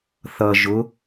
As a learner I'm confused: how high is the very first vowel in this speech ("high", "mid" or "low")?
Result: mid